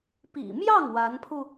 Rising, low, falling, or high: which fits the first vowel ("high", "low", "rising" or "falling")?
low